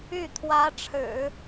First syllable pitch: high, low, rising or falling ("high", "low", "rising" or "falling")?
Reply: falling